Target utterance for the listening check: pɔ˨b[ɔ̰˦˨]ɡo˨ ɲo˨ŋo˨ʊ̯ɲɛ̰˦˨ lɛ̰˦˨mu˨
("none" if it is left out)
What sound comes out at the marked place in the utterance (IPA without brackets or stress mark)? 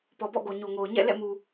ɔ̰˦˨